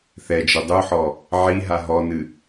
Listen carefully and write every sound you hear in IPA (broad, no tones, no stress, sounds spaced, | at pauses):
θ ɛ d͡ʒ ɘ dˤ u ħ ɔ | ʕ i ɦ a ɦ ɔ n ɨ